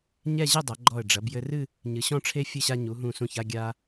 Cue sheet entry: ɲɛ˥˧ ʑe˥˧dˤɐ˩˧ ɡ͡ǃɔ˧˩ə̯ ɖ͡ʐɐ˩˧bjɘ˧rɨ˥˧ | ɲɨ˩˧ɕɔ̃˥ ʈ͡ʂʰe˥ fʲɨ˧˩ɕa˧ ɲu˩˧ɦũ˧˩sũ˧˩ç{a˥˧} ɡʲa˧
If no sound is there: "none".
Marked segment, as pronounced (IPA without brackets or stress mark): a˥˧